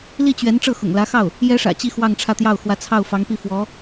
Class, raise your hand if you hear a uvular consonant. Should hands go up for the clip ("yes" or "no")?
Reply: no